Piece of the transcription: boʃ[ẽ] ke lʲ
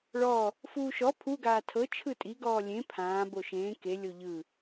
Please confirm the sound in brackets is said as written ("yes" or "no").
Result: no